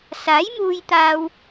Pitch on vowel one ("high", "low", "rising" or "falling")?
rising